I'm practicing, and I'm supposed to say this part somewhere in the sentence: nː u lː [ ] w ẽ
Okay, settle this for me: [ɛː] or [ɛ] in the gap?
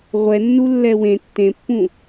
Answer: ɛ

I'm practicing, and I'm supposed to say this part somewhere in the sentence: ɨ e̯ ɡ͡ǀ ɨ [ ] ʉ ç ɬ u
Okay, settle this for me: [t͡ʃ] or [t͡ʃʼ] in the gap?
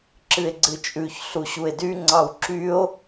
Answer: t͡ʃʼ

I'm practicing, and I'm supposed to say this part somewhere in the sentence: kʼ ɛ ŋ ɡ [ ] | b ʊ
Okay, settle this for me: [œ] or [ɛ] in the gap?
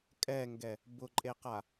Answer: ɛ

